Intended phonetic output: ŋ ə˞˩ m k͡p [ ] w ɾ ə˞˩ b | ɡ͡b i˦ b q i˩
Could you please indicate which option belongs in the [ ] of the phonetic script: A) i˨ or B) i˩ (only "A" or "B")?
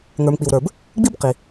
B